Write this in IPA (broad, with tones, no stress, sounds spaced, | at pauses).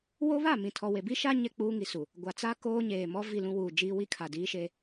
w o˦ β a˦˨ m ĩ˨ tʰ ɔ˨ w e˨ b i˦ ʃ a˦ ɲ ɛ˦ k͡p uː˦ ŋ i˨ s u˨ | ɡʷ a˨ t͡s a˦ k oː˦ ɲ eː˨ m ɔ˦ v i˦˨ l ũ˦ w uː˨ d͡ʒ iː˦ w i˦ kʰ a˨ d iː˦ ʃ e˦